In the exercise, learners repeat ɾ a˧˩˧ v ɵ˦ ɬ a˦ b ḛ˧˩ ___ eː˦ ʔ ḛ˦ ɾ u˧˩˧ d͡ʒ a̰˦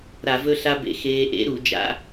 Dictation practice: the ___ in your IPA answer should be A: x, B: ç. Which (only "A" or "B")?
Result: A